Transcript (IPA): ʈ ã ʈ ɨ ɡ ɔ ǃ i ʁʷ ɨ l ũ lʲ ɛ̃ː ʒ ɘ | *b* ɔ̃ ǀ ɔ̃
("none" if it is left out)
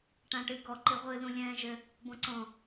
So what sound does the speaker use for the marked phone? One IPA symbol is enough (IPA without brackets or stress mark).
b